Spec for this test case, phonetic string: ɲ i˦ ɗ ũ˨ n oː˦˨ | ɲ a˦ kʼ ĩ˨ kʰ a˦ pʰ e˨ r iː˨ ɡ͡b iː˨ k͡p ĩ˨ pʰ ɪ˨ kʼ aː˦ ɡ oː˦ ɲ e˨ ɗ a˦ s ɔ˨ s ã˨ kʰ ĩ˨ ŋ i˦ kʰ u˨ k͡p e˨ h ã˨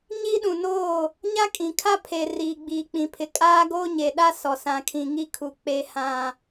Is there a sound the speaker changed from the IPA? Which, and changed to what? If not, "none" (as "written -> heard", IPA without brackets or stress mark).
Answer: none